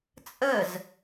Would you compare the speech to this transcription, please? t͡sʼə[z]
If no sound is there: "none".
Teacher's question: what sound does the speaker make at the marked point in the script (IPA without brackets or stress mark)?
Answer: z